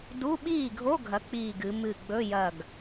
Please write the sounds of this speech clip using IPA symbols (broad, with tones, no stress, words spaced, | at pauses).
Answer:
du˧˥˧ɓiː˥˩ɡʱo˧˥˧ ɡʱɐ˨˥k͡piː˧˩ɡɨ˩˧ mɨ˧˩ɡ͡bɵ˧˥˧jɐ˧˩ɡ